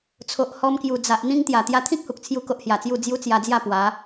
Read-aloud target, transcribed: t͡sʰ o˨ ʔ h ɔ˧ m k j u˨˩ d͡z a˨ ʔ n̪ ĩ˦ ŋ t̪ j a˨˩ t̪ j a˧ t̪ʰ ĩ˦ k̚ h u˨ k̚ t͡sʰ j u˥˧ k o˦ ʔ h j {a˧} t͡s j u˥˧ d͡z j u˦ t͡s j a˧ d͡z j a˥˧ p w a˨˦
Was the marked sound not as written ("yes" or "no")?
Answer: yes